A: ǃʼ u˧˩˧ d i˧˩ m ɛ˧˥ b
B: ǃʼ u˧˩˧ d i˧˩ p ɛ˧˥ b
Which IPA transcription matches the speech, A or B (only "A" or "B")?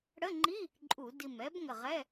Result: A